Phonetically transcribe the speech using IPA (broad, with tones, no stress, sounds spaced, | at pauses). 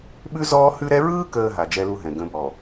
ɓ ʉ˦ z ɔː˦ h ʉ˦ ɾ ɛ˦ ɹ ɯː˦ k əː˨ ɦ a˨ d͡ʒ ɛ˦ l u˦ ɦ ɛ̃˨ ɡ ə̃˨˦ b ɔ˨